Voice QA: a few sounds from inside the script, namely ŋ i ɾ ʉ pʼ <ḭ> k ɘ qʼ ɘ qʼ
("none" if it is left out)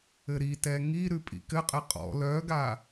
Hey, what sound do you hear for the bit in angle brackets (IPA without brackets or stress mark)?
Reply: ḭ